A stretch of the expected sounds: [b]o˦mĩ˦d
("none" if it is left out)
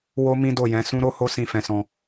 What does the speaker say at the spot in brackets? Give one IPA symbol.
w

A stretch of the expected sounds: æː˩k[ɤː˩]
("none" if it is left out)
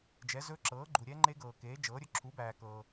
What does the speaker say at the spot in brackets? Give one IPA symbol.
ɤː˩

